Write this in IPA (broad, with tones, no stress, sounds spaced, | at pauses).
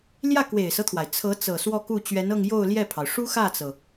l j ä˥˩ k w e˨˩ ɪ̯ s ɤ˦ t̪ʰ w a˩ ɪ̯ t͡sʰ ɤ˧˥ t͡s ɤ˨˩ s w ɔ˥˧ k u˥˩ t͡ɕ ɥ ɛ˧˥ n ɤ˥˧ ŋ j o˥˧ ʊ̯ l j ɛ˥˩ pʰ ɑ˩ ʊ̯ ʂ u˥ x ä˥˩ t͡s ɤ˩